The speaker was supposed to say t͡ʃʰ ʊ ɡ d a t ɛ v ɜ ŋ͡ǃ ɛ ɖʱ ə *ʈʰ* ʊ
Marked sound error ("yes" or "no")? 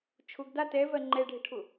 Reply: no